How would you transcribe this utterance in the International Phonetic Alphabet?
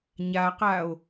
ɲ a q a o̯

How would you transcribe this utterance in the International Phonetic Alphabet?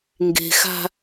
ŋ ɡ e̤ x a̤

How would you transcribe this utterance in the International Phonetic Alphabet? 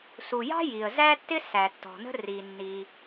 s u˩ j ɑ̤˥ j i˩ ə̯ z æ˥ tː ɪ˥ s æ˩ tː ɔ̤˩ n ə̤˥ r i˩ nː i˩

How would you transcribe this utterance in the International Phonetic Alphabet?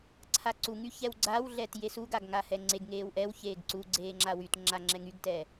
ǀʰ a ǀ u ŋ y ç ɛ w ɡ͡ǀ a w ɮ ɛ t j e s u ɡ a ɡ ŋ a h ɛ ŋ͡ǀ e ɡ ŋ eː w ʔ ɛ w ç eː ɡ ǀ u ɡ͡ǀ eː ŋ͡ǁ a w y t ŋ͡ǁ a ŋ͡ǁ ɛ ŋ y ɡ t ɛː

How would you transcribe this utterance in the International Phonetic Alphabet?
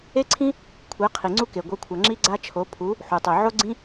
e˦ ǀʰ ĩ˦ | kʷʰ ɛ˨˦ qʰ i˨ ŋ͡ǀ u˦ k e˨ ɡʷ ʌ˨˦ kʷʰ ʌ˨ ŋ͡ǁ i˦ ɡ͡ǀ a˦ t͡ʃʰ o˨˦ pʰ u˨˦ | ħ u˨ tˤ o˨ ʕ o˦ ɡ͡ǀ ĩ˦

